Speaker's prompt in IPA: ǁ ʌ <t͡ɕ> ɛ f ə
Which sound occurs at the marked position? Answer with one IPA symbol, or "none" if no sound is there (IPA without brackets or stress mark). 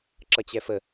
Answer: t͡ɕ